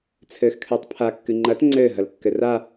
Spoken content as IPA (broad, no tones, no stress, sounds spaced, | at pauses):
t͡sʰ ɘː x kʰ ɨː tˤ pʰ a kː ɨ ŋ͡ǃ ɐ t ŋ͡ǀ ɘː ɦ ɐ l kː ɘ r a